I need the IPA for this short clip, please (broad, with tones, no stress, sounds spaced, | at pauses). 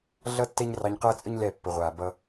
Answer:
ɮ ʌ˦ tː ɛ˦ ɲ r ɑ˧ ɲ q ʌː˦ t͡sʼ ə˦ ɲ l ɛ˦˨ pː ə˨ ʁʷ aː˨ b ʌ˧